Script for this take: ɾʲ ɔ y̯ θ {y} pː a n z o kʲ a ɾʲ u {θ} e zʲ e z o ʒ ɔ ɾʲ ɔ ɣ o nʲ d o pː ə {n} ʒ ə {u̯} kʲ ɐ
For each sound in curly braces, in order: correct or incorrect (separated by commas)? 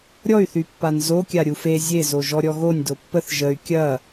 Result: correct, incorrect, incorrect, incorrect